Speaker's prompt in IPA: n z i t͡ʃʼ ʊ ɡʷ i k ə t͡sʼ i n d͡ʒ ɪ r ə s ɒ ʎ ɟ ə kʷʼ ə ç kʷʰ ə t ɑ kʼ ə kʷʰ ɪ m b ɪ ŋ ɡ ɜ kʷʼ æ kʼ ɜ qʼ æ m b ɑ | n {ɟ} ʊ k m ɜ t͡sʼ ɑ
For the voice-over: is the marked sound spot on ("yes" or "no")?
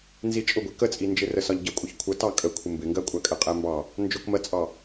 no